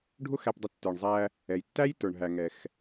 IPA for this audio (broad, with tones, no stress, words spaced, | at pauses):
ɖʱʊ˥x æ˧pdˤʊ˧ tːə˞˩ɳzˤæ˧ | ɛ˩jtːæ˥jtə˞˩ɳ ɦæ˩ŋɛ˩x